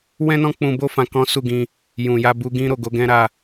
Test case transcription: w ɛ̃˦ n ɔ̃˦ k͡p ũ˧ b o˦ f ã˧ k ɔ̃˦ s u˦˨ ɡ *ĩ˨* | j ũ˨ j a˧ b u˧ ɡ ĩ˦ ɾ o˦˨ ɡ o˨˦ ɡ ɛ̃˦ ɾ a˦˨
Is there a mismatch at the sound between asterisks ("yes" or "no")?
yes